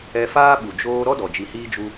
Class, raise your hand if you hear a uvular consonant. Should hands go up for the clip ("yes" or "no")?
no